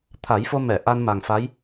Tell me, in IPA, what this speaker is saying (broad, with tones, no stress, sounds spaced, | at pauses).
t̪ʰ a˨˩˦ j f o˧ m ɛ˨˩˨ ʔ a˧ n m a˨˩ ŋ f a˧˥ j